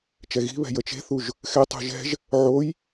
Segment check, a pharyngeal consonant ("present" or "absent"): present